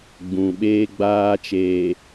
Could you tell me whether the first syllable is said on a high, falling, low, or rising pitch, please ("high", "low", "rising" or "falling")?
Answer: low